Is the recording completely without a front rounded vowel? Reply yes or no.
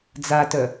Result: no